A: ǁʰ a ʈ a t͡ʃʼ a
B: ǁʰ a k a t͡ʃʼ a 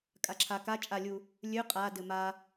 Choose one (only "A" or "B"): B